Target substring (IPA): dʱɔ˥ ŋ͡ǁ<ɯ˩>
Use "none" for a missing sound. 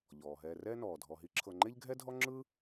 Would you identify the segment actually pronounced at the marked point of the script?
ɯ˥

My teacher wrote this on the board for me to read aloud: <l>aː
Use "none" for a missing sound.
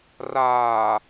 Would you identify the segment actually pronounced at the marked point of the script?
r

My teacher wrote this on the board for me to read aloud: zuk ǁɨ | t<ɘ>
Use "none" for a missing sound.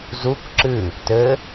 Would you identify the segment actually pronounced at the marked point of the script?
ɘ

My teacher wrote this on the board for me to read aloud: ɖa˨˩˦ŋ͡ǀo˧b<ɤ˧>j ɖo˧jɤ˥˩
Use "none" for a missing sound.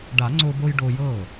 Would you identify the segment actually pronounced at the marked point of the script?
o˧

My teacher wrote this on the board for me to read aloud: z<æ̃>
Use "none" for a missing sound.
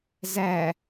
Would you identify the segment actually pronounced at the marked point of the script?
æ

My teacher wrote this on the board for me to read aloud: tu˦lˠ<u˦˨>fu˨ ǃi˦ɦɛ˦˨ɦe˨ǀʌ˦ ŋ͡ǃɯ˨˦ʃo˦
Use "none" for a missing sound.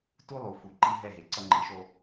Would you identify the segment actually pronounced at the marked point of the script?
u˨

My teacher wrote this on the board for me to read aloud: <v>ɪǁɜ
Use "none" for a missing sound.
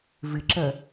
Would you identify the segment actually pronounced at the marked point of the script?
v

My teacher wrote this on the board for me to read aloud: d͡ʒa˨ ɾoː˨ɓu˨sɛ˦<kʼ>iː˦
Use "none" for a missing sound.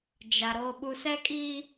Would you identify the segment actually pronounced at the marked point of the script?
kʼ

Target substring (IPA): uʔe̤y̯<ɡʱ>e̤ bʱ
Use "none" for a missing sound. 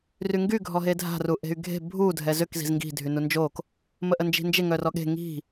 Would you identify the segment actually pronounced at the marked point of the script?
ɡʱ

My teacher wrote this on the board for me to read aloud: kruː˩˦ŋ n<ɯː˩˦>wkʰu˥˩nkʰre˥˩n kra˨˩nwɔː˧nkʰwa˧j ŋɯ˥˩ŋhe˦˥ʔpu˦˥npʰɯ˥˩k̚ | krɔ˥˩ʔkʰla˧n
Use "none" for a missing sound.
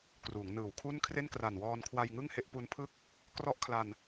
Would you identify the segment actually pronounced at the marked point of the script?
ɯː˩˦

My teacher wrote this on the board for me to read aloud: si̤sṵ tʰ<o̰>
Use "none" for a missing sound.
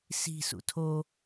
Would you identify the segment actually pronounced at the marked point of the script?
o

